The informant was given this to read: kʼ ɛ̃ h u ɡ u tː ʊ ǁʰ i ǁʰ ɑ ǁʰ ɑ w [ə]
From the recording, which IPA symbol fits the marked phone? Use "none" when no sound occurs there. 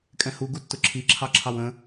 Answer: ə̃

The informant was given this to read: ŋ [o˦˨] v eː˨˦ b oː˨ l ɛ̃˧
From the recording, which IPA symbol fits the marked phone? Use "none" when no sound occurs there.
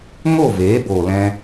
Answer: o˦˨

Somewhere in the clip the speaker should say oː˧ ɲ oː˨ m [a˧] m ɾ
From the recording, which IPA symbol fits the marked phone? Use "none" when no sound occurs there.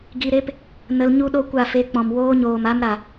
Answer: a˧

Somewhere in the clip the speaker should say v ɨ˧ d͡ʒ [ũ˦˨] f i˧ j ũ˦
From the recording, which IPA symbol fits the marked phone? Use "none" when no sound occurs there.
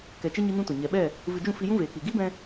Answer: ũ˦˨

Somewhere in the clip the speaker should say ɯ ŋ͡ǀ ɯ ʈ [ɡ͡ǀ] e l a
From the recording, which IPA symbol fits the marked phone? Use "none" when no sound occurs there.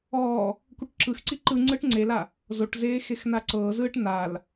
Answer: ŋ͡ǀ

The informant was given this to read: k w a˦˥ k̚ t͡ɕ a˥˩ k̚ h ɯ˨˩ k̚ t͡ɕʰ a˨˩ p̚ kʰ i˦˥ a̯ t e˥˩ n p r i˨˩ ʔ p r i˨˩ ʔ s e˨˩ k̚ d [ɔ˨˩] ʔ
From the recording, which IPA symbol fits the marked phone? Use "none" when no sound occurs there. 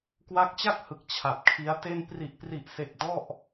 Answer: ɔ˥˩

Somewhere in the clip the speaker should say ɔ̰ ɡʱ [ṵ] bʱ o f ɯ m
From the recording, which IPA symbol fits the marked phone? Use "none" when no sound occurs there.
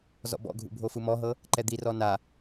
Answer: ṵ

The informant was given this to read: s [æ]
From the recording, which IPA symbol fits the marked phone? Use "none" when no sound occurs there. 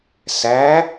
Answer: æ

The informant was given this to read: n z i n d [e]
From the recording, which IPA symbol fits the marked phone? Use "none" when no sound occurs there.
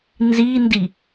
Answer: i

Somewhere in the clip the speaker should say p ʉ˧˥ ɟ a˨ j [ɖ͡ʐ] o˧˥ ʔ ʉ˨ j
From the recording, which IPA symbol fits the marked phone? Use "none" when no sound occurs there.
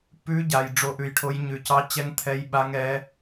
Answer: ɖ͡ʐ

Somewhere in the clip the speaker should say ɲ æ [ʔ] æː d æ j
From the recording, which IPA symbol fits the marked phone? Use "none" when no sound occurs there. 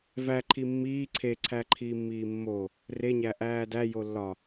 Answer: ʔ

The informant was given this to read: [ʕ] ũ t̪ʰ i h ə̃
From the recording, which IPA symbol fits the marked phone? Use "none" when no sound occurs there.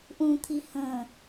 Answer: ʔ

